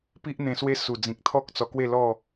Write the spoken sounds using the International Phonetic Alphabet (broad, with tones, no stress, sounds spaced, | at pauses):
p i˦ ʔ n̪ ẽ˧ s w e˦ s u˨˩ d͡z ĩ˨ k̚ t̪ʰ ɔ˦ k̚ t͡s ɔ˧ k w e˥˧ l ɔ˥˧